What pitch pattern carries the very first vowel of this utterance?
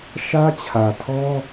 high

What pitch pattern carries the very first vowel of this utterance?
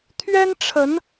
high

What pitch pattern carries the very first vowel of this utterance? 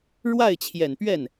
falling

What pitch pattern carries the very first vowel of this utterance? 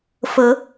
rising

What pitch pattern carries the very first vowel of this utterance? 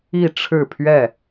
falling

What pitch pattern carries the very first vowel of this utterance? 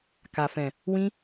low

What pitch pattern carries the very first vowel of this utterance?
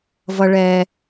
high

